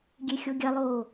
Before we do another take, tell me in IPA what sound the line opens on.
ɡʲ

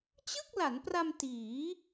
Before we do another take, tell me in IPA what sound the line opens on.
t͡ɕ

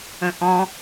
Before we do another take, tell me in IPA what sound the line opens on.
ə̃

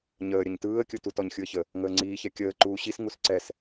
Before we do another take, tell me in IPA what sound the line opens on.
ɲ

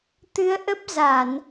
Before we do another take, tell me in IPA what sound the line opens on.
t̪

